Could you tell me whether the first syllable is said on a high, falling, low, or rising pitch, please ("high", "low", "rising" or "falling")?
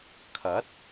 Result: rising